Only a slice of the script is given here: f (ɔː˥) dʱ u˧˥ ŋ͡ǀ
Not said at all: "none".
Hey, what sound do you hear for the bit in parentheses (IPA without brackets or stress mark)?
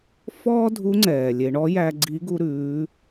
ɔː˥